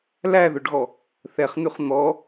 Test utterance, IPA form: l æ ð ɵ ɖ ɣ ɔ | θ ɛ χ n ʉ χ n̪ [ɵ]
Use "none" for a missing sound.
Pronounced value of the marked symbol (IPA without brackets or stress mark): ɔ